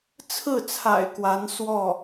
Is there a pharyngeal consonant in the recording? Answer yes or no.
no